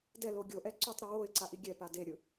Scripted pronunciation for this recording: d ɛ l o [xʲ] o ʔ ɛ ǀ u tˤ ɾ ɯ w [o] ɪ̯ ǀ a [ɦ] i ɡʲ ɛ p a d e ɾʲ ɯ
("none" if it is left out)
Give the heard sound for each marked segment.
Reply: ɡʲ, o, ʔ

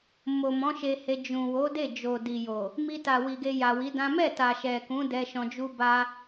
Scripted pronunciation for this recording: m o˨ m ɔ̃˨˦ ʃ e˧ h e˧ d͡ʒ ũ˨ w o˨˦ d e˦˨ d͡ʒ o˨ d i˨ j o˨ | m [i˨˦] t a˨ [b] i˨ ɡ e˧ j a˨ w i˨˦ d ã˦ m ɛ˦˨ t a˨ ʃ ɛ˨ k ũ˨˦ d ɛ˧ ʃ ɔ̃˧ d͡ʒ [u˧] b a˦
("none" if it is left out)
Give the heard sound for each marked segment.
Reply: i˧, w, u˦

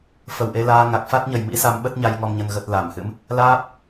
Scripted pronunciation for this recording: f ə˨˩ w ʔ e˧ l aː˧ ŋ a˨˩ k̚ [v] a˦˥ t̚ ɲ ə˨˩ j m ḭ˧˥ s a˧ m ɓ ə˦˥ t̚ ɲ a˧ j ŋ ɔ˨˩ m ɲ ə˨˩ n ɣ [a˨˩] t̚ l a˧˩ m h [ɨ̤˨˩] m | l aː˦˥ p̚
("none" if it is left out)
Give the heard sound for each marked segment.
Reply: f, ə˨˩, ɨ̰˧˥

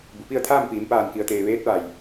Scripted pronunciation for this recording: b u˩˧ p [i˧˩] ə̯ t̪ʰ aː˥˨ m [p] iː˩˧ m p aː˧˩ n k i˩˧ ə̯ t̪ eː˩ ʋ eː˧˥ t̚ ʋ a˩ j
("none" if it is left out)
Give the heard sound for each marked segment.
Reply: i˥˨, p

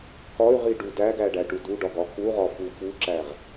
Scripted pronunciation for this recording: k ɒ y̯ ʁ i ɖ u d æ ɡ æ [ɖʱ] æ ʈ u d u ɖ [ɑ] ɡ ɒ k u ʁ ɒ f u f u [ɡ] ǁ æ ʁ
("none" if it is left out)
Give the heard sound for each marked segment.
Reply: ɖ, ɒ, none

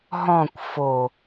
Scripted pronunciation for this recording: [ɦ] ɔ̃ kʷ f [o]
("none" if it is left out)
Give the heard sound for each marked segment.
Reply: ɦ, o

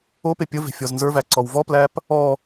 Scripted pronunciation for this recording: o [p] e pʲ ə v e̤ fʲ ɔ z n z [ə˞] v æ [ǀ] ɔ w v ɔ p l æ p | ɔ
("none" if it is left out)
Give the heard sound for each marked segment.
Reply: p, ə˞, ǀ

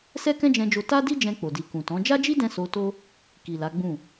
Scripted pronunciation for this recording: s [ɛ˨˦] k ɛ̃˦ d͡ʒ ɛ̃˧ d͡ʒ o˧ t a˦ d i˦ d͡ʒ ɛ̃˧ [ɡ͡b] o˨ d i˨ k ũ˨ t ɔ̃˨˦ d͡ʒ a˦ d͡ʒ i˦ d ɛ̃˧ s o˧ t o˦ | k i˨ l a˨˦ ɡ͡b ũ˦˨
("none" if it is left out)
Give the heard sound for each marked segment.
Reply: ɛ˦, k͡p

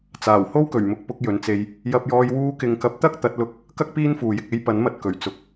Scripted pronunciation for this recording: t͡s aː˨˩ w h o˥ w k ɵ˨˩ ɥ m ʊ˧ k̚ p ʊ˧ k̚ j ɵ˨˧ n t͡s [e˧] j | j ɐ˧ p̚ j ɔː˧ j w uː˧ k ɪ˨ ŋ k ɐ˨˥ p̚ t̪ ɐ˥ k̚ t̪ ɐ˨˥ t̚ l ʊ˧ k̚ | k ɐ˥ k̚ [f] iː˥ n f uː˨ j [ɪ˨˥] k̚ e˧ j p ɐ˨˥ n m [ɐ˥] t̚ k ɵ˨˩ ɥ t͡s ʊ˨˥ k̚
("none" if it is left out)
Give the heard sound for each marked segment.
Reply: e˧, p, ɪ˨, ɐ˨

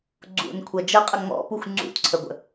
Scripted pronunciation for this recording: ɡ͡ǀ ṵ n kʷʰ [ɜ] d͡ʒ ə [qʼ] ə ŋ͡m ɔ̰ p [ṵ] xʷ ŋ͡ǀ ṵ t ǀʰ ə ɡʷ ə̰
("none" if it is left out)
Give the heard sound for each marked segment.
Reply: ɜ, qʼ, u

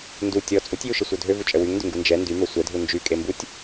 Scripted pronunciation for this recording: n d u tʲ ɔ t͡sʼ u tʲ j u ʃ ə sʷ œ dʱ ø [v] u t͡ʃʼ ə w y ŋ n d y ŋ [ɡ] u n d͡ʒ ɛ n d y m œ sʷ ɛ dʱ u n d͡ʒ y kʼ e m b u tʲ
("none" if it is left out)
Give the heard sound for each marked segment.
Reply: v, ɡ

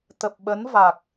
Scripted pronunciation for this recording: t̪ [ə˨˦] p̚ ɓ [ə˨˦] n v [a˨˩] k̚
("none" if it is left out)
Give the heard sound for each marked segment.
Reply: ə˨˩, ə˨˦, a˨˩

